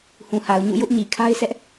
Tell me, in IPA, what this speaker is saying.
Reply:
h ũ˨ h a˨ ʊ̯ ɲ ṵ˦˨ j ʊ˦ ʔ ɲ i˨ kʰ a˦ ɪ̯ s ɛ˦ ʔ

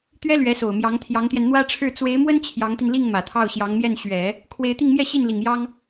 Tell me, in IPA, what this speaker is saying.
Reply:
t̪ ɥ ɛ˥ l ɥ ɛ˧˥ s o˨˩ ʊ̯ m j ɑ˧˥ ŋ t̪ʰ j ɑ˧˥ ŋ t̪ j ɛ˧ n n̪ w ä˥ ʈ͡ʂʰ ɻ̩˥˩ t͡s w e˧˥ ɪ̯ m w ə˥ n t͡ɕʰ j ɑ˧˥ ŋ t̪ i˧ n l i˥˩ ŋ m ä˨˩ t̪ʰ ɑ˥˩ ʊ̯ ɕ j ɑ˧˥ ŋ m j ɛ˥˩ n ɕ ɥ ɛ˨˩˦ | kʰ w e˧˥ ɪ̯ t̪ i˥˧ ŋ m j ɛ˥˧ ɕ i˥˩ n l i˨˩ ŋ j ɑ˥ ŋ

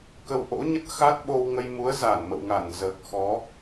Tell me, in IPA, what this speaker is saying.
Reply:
k ə˧ w ʔ o̰˧˥ ɲ ə˦˥ t̚ x a˦˥ t̚ ɓ o˧ w ŋ ə˧ j m u˨˦ ə̯ z a˧˩ n m ə̰˧˨ w ŋ a˧˩ n z əː˨˩ k̚ x ɔ˨˦

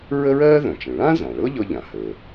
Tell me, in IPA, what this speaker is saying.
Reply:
ɹ ə˥ ɹ ɜː˥ ð œ̃˩ t͡ʃ ə̃˩ ɭ ã˥ z ã˩ ɭ ɤ˥ ʎ ɤ˥ ʎ ã˩ h əː˩

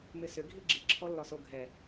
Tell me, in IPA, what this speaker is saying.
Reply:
m ɪ s ʏ ɡʱ i ɡ͡ǁ i ǁʰ ɔ lː ɒ s o ɡʱ ɛ

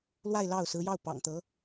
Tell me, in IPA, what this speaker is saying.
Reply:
l w a˥˧ ɪ̯ l ɑ˥˩ ʊ̯ s ɹ̩˧˥ j ɑ˥˩ ʊ̯ p ɑ̰˨˩ ŋ t̪ ɤ˧˥

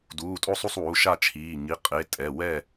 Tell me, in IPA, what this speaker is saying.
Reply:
d uː˩˧˩ tʼ o˥˨ sˤ u˥˨ sˤ w u˩˧˩ ʃ a˥˨ t͡ʃʰ iː˩˧˩ ŋ i˩˧˩ qʼ e˩˧˩ tʼ ɛ˩˧˩ w ɛ˥˨

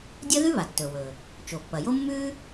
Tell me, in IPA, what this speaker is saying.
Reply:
dʲ ɐ˥ ð ʉ˥ β a˩ tː ɵː˩ w ɵː˩ | t͡ʃ o˩ pː ɐ˩ j o˥ mː ʉː˥

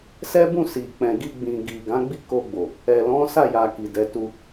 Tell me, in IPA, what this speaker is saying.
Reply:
s ɛ˦ b ũ˦˨ s i˨ k͡p ɛ̃˨ ɡ i˧ ɡ͡b ĩ˨ ɡ i˨ ɡ ã˨˦ ɡ͡b i˦ k o˧ ɡ͡b o˨ | ɛ˨ l ɔ̃˨˦ s a˦˨ j a˨ k i˨ d ɛ˨˦ t u˧

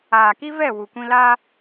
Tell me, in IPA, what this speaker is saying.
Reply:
aː˨ k i˦ v ɛ˦˨ w u˨ kʷ ĩ˦ l aː˦

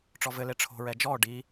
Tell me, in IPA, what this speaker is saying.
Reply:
ʈ͡ʂ ɔ v ɘ l e ʈ͡ʂʰ o̤ ɹ ɛ d͡ʒ ɔ ɖ i

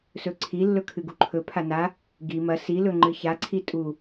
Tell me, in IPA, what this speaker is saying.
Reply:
s ɵ ǀʰ i lː ɵ kʰ ɨ ɡ u ǃʰ ɵ pʰ a n a | ɡ i m ɐ s i l ɵ ŋ͡ǃ ɨ ç a ǀʰ i tʼ u

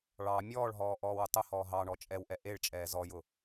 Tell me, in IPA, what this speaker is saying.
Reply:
ɭ ɑ mʲ ɔː ɭ ɦ ɔː ʔ ɔː w ʊ tˤ ʊ h ɔː ɦ ɑ ɳ ɔ t͡ʃʼ ɛ w ʔ ɛ ʔ e ɭ t͡ʃʼ ɛː z ɔ j ʊ

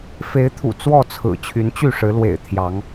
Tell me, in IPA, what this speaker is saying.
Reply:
f e˨˦ ɪ̯ t̪ʰ ṵ˨˩ t͡s w ɔ˥˨ t͡sʰ ɹ̩˨˩ t͡ɕʰ y˨˦ n t͡ɕ y˥˨ ʂ ɻ̩˨˦ l w ḛ˨˩ ɪ̯ t̪ʰ j ɑ˨˦ ŋ

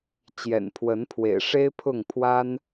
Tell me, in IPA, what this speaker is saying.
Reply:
t͡ɕ j ɛ̰˨˩ n pʰ w ə˨˦ n pʰ w ḛ˨˩ ɪ̯ ʂ e˦ ɪ̯ pʰ ʊ˥˨ ŋ pʰ w a˦ n

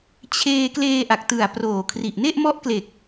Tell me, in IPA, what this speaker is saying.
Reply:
t͡ɕʰ eː˧ k l eː˧ ʔ a˨˩ k̚ t ɯ˨˩ a̯ p r oː˨˩ kʰ r i˨˩ ʔ n e˥˩ ʔ m ɔ˦˥ ʔ k l e˨˩ k̚

